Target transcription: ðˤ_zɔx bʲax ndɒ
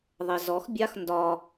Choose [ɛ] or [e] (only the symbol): ɛ